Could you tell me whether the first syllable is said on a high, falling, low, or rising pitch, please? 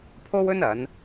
high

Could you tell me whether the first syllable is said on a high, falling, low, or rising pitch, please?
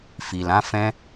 low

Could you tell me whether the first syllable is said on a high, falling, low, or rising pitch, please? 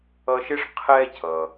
high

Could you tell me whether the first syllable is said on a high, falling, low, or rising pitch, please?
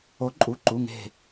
rising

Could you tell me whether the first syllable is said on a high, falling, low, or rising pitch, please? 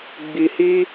low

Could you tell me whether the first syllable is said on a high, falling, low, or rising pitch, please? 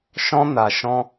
high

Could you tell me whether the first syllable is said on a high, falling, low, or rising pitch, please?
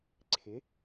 rising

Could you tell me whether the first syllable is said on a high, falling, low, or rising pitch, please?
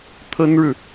high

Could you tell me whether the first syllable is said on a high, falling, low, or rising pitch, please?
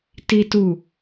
high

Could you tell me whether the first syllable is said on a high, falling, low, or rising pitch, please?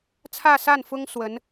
falling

